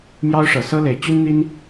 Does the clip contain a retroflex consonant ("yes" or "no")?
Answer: yes